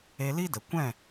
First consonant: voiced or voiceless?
voiced